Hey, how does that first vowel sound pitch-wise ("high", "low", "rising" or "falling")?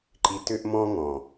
low